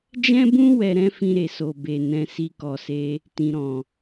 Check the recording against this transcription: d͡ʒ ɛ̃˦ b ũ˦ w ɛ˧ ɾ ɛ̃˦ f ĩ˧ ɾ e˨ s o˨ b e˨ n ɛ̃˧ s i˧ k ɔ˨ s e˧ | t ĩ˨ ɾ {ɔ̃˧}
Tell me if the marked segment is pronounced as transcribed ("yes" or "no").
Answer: no